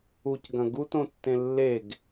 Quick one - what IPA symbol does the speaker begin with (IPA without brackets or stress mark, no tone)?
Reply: u